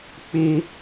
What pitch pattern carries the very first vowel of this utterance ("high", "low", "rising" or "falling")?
high